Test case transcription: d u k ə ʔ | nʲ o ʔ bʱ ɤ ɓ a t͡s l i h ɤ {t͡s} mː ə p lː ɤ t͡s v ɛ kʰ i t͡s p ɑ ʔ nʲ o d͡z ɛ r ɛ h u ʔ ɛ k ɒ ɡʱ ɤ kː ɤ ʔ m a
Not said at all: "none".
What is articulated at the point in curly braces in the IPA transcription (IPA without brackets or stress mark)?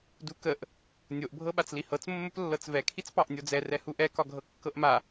t͡s